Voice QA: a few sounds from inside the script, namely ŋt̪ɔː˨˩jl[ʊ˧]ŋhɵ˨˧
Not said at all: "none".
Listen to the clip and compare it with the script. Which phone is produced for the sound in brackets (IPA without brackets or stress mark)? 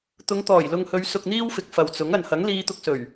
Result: ʊ˨